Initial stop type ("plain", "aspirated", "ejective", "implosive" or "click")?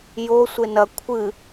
aspirated